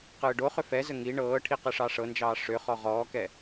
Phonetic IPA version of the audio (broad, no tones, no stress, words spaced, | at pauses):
qɯːɖoχʏ fɛzə ŋi ɳɤːʈʰi qɯʂɑʂɤnd͡ʒɑː ʂʏ χɔʁɔːkɛ